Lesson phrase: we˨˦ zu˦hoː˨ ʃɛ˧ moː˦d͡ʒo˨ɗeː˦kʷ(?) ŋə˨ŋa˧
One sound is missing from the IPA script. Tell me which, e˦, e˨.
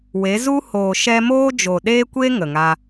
e˦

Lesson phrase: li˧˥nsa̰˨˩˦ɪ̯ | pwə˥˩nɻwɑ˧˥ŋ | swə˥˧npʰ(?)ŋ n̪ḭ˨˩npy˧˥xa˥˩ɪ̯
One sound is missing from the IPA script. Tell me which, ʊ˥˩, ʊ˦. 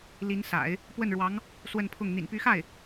ʊ˥˩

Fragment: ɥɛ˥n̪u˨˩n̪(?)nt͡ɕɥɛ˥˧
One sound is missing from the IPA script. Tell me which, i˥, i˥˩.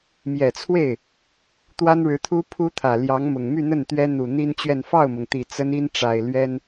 i˥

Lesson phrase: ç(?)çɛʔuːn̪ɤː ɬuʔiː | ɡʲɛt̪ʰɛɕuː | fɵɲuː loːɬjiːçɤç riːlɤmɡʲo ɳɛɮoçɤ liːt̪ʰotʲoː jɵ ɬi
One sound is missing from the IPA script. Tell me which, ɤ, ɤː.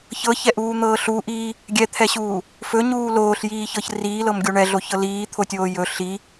ɤ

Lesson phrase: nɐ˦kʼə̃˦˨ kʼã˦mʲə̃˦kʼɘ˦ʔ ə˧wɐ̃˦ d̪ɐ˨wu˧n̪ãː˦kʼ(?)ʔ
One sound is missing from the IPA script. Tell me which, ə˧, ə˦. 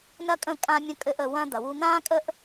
ə˦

